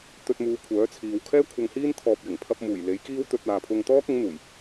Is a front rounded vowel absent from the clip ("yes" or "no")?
no